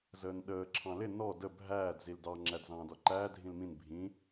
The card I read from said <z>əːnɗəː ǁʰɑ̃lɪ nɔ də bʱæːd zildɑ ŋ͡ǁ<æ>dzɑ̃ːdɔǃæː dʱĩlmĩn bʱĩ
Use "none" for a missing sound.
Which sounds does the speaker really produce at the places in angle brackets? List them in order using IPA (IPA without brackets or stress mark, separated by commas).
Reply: z, æ